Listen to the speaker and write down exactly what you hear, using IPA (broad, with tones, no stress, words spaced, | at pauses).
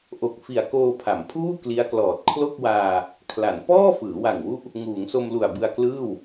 ʔo˨˩k̚fi˨˩a̯ koː˧pʰa˩˦mpʰuː˥˩ kli˦˥a̯klɔː˨˩t̚ kʰlo˥˩k̚waː˧ | kʰla˩˦n pɔː˥˩ fɯː˩˦wa˨˩ŋwu˦˥ʔ | ŋuː˩˦ŋso˧mlu˨˩a̯ bɯ˧a̯klɯː˥˩w